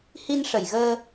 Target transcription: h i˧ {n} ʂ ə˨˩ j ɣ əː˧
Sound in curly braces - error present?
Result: no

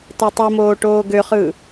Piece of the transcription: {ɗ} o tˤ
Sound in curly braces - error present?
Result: yes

